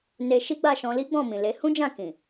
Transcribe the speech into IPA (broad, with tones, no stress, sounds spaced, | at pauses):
n e˧ ʃ i˦ ɡ͡b a˦˨ ʃ ɔ̃˧ l i˦ ɡ͡b ɔ̃˦˨ m ĩ˨ l e˨˦ h ũ˦ d͡ʒ ã˦˨ k ĩ˨